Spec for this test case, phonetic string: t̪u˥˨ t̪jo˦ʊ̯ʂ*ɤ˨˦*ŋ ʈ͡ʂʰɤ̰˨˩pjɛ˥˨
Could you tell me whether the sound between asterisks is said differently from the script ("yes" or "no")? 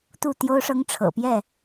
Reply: yes